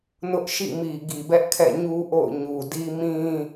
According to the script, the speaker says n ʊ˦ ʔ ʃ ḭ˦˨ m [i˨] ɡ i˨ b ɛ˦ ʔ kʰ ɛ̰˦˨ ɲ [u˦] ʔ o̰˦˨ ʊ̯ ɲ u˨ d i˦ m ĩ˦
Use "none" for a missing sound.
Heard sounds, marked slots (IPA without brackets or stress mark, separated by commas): i˨, u˦